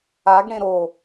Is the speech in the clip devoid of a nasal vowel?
no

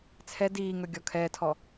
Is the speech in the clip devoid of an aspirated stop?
no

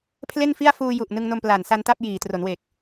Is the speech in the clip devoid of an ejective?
yes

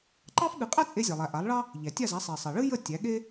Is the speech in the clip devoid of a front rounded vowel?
yes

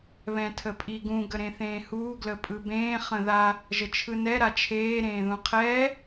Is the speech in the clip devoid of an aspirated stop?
no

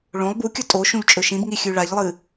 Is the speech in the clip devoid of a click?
yes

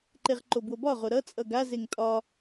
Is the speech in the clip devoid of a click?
no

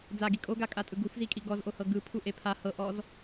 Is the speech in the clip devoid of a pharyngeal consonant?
yes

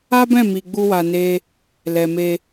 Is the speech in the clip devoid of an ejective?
yes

